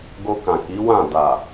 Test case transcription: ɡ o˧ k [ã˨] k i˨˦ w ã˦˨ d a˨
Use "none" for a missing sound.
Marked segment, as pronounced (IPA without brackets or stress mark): ã˨